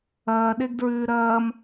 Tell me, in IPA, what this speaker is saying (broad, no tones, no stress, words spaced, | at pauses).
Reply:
ɐːɗeɡdɹʉː ɾɐːm